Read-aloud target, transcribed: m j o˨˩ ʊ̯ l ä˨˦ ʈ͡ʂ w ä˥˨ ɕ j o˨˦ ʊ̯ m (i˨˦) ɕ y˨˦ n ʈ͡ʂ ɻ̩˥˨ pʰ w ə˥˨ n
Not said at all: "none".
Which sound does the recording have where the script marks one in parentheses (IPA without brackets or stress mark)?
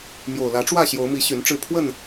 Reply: i˨˦